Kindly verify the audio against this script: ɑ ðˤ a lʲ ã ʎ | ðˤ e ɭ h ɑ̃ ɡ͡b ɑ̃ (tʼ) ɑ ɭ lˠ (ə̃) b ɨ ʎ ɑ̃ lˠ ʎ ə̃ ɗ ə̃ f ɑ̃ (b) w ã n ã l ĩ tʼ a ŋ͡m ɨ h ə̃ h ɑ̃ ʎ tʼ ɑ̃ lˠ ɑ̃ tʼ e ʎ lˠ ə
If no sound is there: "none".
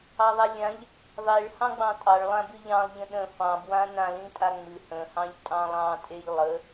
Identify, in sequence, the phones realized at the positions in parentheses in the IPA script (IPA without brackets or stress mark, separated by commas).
tʼ, ã, b